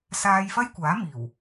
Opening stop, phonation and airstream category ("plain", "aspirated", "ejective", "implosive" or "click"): plain